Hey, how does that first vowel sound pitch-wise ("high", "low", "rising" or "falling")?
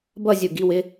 falling